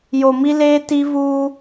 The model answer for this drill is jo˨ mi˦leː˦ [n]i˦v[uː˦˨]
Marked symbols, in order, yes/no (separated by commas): no, no